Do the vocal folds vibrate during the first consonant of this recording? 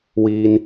yes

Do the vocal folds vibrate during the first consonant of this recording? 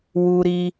yes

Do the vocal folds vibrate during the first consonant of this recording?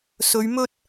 no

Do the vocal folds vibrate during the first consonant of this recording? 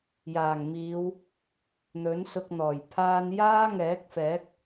yes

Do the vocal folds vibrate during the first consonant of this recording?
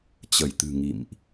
no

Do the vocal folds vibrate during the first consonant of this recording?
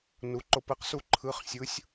yes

